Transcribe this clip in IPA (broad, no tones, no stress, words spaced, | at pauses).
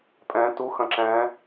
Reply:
pʼɛ̃ tuxɐ̃ ǁɛ̃